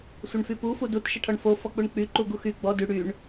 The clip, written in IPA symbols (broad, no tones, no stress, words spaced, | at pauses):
sʷəɳfypu fudut ʃəʈʰɔɳfo fɔk͡puɳk͡py ǃuɡuxy ɡ͡bɔ dy ɽyɳ